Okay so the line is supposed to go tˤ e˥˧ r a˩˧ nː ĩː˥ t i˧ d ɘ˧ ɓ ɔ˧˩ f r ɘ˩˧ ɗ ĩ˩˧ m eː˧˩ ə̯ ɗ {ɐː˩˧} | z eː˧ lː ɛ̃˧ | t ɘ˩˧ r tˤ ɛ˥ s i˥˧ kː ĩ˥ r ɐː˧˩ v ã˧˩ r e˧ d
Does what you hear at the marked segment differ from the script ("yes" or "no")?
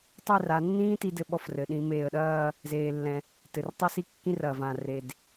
yes